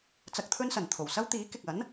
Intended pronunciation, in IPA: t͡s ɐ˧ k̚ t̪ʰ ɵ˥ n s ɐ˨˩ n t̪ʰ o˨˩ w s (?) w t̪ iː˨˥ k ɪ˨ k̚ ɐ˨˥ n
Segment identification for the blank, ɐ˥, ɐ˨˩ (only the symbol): ɐ˥